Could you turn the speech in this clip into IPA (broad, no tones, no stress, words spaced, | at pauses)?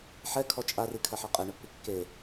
ħɛkʰɔ t͡ʃʼarikʰɐħɛ qʼeɳɘpːi kːe